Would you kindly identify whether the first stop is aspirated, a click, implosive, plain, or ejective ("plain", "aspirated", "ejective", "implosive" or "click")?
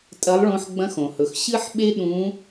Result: ejective